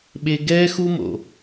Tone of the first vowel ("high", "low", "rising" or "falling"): high